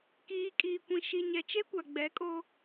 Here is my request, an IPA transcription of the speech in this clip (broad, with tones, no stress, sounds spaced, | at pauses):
k iː˨ kʼ iː˨ kʷ ĩ˨ ʃ i˨ ɲ ɛ˨ t͡ʃ e˦ kʷ a˨ ɡ͡b ɛ˨˦ kʼ o˦